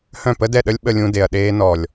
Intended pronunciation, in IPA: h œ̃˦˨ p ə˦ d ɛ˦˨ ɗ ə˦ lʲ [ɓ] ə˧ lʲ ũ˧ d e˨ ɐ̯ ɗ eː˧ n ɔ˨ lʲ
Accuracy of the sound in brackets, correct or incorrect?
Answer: correct